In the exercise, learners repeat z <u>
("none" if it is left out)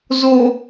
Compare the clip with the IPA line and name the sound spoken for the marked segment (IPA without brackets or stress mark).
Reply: o